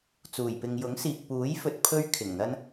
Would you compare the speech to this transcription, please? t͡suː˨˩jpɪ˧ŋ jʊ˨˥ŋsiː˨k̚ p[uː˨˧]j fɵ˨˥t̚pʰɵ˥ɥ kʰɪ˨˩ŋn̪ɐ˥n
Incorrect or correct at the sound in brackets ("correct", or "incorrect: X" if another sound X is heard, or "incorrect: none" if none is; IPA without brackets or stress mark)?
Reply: incorrect: uː˨˥